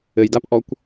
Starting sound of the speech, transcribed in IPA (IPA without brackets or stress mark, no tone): ɘ